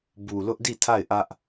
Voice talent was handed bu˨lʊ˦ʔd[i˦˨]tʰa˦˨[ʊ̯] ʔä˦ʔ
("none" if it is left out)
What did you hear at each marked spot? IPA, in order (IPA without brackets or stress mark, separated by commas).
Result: i˦˨, ɪ̯